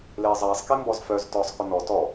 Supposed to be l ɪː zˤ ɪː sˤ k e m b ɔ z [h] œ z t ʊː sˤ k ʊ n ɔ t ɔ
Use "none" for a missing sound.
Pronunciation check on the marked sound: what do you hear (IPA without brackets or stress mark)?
f